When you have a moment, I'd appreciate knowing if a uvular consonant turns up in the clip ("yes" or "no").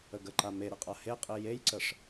yes